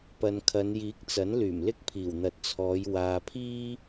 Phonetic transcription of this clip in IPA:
pɐ˨nkʰɐ˨˧n jiː˨˥k̚t͡sɐ˨˥n lyː˨˩mlɪ˥k̚pʰiː˨˩w n̪ɐ˨˥t̚t͡sʰɔː˨˧j waː˨pʰiː˥

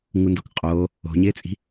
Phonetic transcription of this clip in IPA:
ŋundokqʼoː | o̤ɲɪːt͡sʼi̤

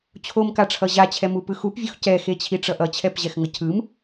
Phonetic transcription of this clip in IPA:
t͡ɕʰomkaʈ͡ʂʰʌ ʑat͡ɕʰɛmupɯ xupvʲox cɛxet͡ɕʰiʈ͡ʂʌ ʔʌt͡ɕʰɛpʑɛxŋʌ cʰɯm

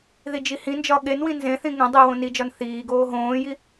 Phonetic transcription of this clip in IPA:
ðid͡ʒihĩnd͡ʒɒ ɠenwĩ nzẽθĩ ŋẽ dˤiwõ nid͡ʒɒn θiːɡoː ɦõːji

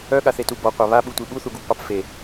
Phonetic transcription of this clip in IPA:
œɠaθetu bɔqʷa βaɓutʷi ɓuθuɡuɡpɑp fe

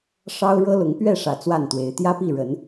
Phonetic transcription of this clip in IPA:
ʂɑ˦ʊ̯ ɻɤ˦lʊ˨˦ŋpɥɛ˥˨ʂä˨˩ t͡swa˥˨nt̪we˨˦ɪ̯ t̪jä˦pi˥˨ɻə˨˦n

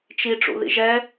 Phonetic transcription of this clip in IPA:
t͡ʃi ʈ͡ʂṵðḭʒɛ

